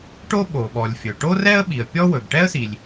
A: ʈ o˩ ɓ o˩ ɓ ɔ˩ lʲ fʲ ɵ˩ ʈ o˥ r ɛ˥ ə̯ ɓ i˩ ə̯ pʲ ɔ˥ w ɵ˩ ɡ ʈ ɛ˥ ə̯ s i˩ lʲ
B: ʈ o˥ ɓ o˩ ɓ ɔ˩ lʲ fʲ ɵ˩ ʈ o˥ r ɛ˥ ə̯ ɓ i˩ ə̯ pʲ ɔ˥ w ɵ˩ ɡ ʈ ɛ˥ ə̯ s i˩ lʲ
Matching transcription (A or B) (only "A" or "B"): B